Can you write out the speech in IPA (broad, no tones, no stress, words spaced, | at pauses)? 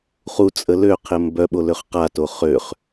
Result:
χut͡sʼə løqʰɪm bœɓoløχ qato χøχ